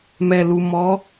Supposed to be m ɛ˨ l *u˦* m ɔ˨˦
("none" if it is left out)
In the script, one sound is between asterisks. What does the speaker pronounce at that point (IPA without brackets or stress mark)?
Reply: u˨